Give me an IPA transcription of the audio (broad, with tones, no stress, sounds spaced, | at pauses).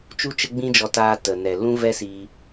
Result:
t͡ʃ u˦ t͡ʃ ə˦ ɡ͡b ĩ˦ d͡ʒ ɔ˧ t aː˧ t ə˨ n ɛ˨ l ũ˦ v ɛ˦ s iː˧